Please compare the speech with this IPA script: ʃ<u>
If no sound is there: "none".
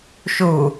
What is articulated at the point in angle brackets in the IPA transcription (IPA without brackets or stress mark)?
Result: u